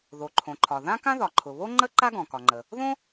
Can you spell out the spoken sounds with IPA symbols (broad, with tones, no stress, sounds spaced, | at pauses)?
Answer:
ð o˩ ǃʰ õ˩ ǃʰ ɒ˩ ð ã˥ k ã˥ ð ɒ˩ ǃʰ ʊ˩ β o˥ ŋ͡ǃ ə˥ ǃ a˥ ɡ ɔ̃˩ k ɒ˩ ŋ͡ǃ ə˩ | ð õ˥